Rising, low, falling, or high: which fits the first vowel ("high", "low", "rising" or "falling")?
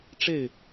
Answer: falling